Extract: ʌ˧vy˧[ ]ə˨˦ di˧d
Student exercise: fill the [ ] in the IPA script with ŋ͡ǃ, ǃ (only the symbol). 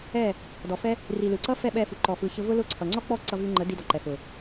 ŋ͡ǃ